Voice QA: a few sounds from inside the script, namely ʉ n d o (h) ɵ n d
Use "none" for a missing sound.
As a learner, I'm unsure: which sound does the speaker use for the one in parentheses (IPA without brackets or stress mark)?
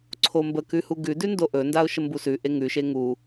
ʔ